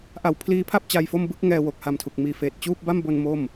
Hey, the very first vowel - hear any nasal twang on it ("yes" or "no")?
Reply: no